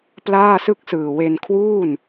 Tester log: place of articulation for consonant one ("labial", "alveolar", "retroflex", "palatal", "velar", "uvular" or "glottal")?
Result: labial